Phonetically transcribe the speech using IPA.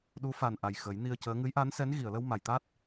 ɗu˧˥fa˨˩n ʔa˨˩jxə˨˩˦jni˧ə̯cəː˧˥ ŋɨ˧˥jʔa˧˥nsɛ˧˥n ɣi˨˩˨ə̯lə˧wma˨˩˨jt̪a˦˥t̚

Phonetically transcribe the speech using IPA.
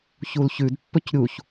çulçʉd pːɵcɾʲuç

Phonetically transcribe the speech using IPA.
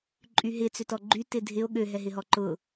ǃʼyɦɪ t͡sʏtɔɡ͡ǃy tɪdʱɪo̯ ɠø ɦɛɦɪɦɔǃʊ

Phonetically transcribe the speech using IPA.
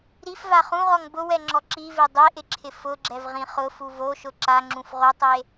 ɾifva χũʁɔŋ bʊwɛŋ͡ǁɔ ǁive dˤeʔɪǁʰɪ fʊɡ͡ǁɛvʁĩ χʊfu voʃʊ ǁaŋ͡ǁũf ʁotˤe

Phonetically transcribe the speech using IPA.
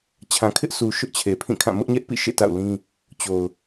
t͡ɕʰã˨kʰɪ˦ʔ su˨ ʃʊ˦ʔt͡ɕʰe˨ pʰĩ˦˨kʰã˦˨ mʊ˦ʔɲɛ˦ʔpḭ˦˨ ʃḛ˦˨ta̰˦˨ʊ̯lĩ˦ | t͡ɕo˨ʊ̯

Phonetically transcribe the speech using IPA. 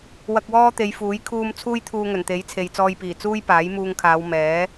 wɐ˧k̚wɔː˥t̪e˨˧jfuː˨˥j kʰuː˧m t͡sʰuː˥jt̪ʰuː˧ŋɵ˨˩nt̪e˨˥j t͡sʰe˨jt͡sɔː˧jpiː˨˩ t͡suː˥jpaː˨˥jmuː˧ŋkʰaː˨˧w mɛː˨˥

